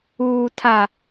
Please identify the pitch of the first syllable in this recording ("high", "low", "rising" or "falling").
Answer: low